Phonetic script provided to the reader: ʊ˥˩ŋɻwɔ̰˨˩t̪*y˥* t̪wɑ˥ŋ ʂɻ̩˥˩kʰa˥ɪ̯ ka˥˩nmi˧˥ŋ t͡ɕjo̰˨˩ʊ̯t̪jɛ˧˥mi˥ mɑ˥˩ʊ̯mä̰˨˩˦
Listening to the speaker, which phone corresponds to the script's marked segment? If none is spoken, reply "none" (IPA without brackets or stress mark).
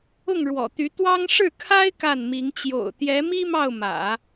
y˧˥